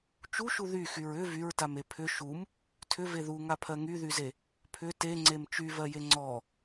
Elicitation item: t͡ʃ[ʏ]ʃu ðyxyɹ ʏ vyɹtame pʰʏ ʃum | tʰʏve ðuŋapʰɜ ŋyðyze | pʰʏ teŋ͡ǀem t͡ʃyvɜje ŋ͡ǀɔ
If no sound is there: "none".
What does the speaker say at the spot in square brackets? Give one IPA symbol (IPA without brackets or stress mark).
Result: u